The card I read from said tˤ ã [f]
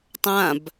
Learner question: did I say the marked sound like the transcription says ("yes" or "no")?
no